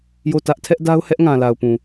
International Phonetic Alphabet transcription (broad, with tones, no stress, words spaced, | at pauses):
jo˦˨tä˦ʔ tʰɛ˦ʔda˦ʊ̯ hɛ˦ʔŋã˨la˨ʊ̯ pũ˨